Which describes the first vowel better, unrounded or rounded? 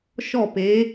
rounded